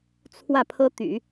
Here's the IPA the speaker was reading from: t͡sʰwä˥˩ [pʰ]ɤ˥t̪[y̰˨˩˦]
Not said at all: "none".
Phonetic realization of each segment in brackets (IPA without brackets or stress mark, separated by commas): pʰ, y̰˨˩˦